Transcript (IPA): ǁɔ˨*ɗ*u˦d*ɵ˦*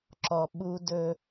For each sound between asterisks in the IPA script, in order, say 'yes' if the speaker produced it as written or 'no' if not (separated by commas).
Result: no, yes